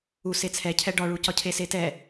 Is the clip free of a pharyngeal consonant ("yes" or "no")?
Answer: yes